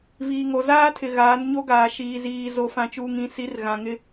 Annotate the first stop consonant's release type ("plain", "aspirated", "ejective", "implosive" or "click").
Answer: aspirated